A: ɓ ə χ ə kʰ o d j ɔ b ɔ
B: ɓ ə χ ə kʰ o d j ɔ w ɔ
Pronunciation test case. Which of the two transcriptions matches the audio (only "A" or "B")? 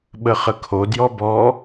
A